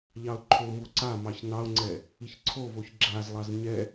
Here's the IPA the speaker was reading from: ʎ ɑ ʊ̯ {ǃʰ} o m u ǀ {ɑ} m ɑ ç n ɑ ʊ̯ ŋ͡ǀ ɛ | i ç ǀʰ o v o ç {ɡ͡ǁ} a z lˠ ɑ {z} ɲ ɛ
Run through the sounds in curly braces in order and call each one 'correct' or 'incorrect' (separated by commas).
correct, incorrect, correct, correct